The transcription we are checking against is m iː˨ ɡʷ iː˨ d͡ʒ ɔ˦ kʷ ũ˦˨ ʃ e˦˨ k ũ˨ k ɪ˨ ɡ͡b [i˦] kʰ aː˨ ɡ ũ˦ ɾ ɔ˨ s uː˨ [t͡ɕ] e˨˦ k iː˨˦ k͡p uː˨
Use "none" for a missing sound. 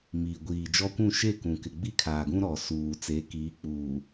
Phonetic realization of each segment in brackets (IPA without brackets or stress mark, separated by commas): i˦, t͡s